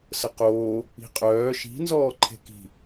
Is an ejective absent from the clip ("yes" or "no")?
no